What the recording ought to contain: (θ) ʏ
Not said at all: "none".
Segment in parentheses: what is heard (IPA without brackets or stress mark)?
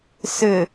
s